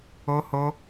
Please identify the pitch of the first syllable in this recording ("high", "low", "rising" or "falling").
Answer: high